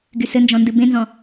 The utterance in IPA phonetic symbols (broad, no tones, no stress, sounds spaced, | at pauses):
ɡ y s ɘ n d͡ʒ ɔ̃ n d ɨ b ẽ n z ɔ̃